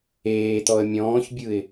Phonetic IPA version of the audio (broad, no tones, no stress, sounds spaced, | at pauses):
eː t̪ ɔ ə̯ mʲ ɔ̃ː ç bʲ ɯ ɪ̯